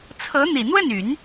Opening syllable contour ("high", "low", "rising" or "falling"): rising